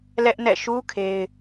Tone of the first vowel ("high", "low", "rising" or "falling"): high